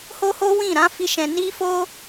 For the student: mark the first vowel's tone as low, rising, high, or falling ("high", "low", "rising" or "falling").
high